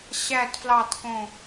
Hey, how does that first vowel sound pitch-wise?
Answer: low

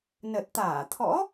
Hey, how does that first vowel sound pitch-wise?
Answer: low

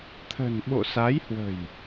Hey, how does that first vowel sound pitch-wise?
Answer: low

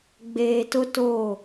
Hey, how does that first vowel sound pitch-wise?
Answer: low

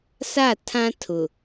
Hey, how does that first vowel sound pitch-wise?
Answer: falling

